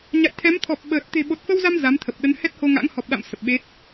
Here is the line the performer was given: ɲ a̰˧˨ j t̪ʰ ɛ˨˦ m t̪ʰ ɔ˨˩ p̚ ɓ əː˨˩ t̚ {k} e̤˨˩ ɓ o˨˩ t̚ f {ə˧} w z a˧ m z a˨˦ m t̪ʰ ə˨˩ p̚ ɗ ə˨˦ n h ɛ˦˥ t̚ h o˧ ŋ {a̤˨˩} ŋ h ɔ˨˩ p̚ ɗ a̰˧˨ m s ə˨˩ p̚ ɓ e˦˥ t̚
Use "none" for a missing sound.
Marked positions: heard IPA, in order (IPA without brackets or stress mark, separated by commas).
t̪, ə˧, a̰˧˥